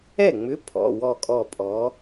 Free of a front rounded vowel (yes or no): no